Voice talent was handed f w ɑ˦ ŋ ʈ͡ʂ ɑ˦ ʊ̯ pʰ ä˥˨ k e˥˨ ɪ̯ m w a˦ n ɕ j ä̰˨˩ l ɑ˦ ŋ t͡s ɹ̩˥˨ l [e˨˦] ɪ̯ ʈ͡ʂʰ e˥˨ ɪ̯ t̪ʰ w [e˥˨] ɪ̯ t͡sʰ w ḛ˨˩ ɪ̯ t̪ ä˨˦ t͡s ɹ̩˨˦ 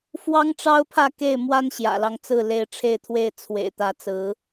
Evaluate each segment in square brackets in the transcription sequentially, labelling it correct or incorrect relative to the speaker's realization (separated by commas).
correct, correct